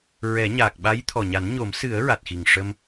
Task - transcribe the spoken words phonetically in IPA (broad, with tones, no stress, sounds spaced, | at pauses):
ɹ ɛ˨˩˦ ɲ aː˨˩ k̚ ɓ a˧˥ j t̪ʰ ɔ˨˩ ɲ a˨˩˦ n ɲ o˨˩˦ m s ɨ˨˩˦ ə̯ ɹ a˨˩ t̚ x i˨˩ ŋ ʂ ə˧ m